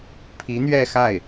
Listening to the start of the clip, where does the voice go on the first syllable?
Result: rising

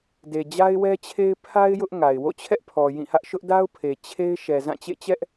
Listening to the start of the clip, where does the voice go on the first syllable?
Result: low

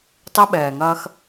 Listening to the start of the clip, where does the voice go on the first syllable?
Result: high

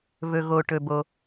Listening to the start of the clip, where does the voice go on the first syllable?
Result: low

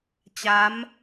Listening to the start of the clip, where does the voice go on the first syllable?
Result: rising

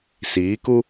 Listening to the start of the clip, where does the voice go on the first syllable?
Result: rising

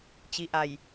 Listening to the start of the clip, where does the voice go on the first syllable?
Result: rising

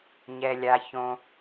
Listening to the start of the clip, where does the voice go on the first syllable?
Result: low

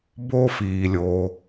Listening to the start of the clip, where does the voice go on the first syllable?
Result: high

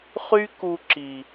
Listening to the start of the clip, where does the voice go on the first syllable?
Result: high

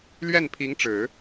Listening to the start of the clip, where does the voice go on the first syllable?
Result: falling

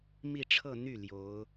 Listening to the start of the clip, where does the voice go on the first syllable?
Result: falling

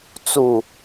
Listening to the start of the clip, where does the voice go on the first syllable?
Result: low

